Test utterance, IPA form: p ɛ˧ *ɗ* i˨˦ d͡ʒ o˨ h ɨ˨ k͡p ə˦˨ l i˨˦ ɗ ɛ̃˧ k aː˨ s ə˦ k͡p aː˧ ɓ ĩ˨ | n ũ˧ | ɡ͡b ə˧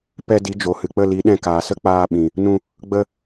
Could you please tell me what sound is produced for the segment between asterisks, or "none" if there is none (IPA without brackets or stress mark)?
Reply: d